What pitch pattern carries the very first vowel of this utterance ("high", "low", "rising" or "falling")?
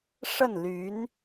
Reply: falling